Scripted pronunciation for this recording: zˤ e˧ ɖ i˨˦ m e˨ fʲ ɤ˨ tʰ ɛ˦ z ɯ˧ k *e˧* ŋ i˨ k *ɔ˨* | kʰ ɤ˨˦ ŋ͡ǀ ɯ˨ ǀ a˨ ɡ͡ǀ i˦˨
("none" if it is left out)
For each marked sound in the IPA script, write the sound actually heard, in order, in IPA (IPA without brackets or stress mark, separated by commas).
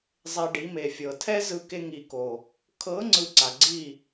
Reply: e˧, o˨